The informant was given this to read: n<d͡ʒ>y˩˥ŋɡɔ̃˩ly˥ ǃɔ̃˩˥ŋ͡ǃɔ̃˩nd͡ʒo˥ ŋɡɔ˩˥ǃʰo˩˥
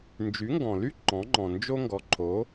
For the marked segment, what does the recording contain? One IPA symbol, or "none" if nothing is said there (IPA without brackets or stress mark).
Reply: d͡ʒ